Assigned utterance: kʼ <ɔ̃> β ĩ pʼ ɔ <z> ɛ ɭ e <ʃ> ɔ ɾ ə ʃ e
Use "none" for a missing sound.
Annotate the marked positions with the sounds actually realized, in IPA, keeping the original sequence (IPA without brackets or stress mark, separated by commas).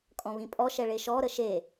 ɔ̃, ʃ, ʃ